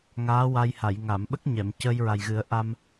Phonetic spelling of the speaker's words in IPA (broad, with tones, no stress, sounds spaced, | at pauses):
ŋ aː˧˥ w a˧ j h a˨˩˨ j ŋ a˨˩˨ m ɓ ə˦˥ k̚ ɲ ɛ˨˩˨ m c əː˧ j ɹ a˨˩ j ɣ ɨ˨˩˦ ə̯ ʔ a˧ m